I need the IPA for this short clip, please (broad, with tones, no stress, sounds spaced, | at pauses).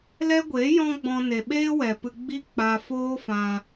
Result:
l ɛ˦ ɡʷ eː˨˦ j ɔ̃˦ ɡ͡b ɔ̃˧ n e˨ ɓ eː˦ w ɛ˨ p ɨ˧ ɡ͡b i˦ k͡p aː˧ f oː˦ f ã˧